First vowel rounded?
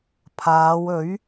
no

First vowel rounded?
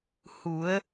yes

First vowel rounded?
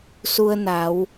yes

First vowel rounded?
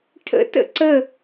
no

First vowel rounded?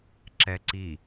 no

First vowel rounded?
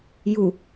yes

